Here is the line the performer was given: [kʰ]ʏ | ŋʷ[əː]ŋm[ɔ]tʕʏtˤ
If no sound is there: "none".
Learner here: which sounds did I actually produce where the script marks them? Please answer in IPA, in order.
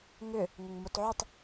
ŋ, ə, o

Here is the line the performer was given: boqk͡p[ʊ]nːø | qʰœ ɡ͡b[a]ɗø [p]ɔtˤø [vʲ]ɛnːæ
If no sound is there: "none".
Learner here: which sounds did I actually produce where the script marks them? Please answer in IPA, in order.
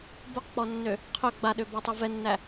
ɔ, a, b, v

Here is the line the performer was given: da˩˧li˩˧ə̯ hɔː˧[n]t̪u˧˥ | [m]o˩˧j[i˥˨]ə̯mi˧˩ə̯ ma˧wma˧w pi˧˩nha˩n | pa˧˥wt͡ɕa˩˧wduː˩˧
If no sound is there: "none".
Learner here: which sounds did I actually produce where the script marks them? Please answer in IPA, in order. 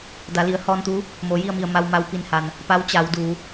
n, m, i˥˨

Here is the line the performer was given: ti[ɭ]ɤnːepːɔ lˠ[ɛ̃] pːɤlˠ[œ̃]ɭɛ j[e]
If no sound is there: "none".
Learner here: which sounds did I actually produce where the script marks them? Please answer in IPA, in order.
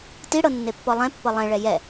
ɽ, ɛ̃, ɛ̃, ɛ

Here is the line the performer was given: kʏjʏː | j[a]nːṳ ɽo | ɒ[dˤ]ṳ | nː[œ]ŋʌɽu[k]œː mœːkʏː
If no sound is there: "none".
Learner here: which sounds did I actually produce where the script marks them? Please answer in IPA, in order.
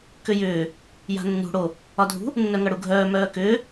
a̤, dʱ, œ, ɡʱ

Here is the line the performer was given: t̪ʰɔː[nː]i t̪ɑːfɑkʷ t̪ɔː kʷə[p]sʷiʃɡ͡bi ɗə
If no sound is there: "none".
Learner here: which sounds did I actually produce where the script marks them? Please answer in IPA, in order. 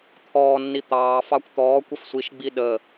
nː, f

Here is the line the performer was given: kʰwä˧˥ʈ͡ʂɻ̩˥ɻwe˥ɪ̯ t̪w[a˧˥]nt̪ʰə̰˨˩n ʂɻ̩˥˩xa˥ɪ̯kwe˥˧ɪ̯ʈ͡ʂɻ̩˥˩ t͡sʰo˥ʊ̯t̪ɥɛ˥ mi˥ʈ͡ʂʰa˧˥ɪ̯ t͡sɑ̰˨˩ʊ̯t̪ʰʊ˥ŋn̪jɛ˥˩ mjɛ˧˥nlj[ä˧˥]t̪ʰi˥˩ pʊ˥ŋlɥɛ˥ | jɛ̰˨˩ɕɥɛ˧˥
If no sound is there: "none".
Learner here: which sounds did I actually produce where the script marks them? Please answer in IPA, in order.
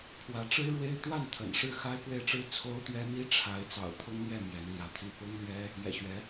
a˥˩, ä˧˥

